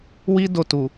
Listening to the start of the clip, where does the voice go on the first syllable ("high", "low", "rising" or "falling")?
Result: high